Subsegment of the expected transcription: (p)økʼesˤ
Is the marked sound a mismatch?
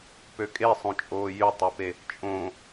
no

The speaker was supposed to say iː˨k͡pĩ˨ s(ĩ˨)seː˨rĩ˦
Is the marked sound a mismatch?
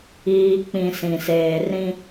no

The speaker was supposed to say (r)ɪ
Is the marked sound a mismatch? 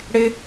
yes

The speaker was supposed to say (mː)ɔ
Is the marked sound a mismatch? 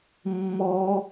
no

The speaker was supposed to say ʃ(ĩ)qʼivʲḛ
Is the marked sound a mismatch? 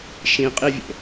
no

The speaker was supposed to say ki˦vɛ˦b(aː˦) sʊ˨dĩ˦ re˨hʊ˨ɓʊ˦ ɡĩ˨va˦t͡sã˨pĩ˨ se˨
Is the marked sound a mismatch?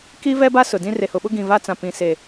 yes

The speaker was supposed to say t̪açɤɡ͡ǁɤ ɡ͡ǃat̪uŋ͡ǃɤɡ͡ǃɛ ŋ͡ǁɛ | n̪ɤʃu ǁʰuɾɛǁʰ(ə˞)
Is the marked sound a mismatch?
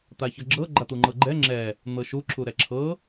yes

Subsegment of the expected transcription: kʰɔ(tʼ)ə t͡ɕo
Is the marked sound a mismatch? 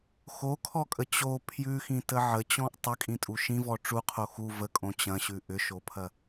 yes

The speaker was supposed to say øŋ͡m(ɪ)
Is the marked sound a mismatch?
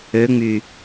yes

